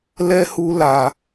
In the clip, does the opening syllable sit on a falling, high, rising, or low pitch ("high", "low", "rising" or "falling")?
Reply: high